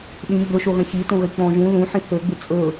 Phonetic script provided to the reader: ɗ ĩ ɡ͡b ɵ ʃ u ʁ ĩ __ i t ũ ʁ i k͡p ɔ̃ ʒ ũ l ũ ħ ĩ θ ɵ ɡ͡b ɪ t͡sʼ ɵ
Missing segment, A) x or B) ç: B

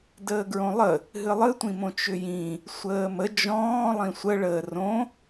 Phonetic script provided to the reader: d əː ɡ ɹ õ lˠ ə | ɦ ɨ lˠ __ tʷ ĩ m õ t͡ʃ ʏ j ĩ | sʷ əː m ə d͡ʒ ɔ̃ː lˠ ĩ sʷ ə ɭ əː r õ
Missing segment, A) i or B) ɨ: B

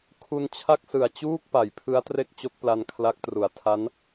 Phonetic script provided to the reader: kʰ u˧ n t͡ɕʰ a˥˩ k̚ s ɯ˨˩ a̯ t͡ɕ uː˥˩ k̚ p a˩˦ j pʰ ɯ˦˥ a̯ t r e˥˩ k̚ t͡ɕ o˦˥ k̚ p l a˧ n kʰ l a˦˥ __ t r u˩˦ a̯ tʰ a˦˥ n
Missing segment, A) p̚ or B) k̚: B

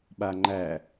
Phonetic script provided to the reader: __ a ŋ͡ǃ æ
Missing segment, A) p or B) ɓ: B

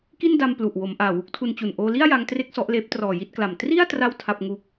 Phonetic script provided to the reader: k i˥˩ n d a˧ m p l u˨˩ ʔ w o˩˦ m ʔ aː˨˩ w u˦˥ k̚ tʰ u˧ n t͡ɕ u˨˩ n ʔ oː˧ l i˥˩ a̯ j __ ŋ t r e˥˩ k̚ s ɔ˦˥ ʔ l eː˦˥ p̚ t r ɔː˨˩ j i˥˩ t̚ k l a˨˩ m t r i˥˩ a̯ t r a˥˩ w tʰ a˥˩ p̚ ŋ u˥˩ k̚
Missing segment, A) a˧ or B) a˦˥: B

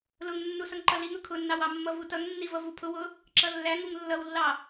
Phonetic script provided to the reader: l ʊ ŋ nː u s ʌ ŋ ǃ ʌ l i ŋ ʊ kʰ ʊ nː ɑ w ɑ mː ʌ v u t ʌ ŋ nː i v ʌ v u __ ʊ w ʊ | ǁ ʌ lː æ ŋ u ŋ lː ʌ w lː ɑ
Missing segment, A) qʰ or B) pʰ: B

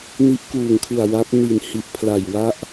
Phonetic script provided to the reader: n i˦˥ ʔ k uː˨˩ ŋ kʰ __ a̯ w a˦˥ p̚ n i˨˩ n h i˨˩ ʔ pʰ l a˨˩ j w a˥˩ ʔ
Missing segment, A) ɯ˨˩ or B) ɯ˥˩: A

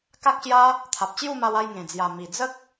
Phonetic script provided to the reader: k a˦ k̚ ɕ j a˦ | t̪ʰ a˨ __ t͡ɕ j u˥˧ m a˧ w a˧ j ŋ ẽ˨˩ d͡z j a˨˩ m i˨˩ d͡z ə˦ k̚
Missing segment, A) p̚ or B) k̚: A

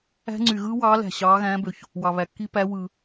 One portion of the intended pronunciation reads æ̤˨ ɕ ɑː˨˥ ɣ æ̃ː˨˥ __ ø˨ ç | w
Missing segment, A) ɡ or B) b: B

